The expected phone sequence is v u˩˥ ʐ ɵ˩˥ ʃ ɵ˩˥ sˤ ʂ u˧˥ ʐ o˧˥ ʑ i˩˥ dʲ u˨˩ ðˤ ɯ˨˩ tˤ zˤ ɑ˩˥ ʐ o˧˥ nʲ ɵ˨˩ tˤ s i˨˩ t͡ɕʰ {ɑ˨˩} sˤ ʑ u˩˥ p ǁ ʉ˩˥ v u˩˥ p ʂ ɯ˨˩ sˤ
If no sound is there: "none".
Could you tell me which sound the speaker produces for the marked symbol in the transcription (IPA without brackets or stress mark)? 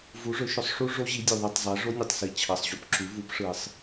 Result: ɑ˨˩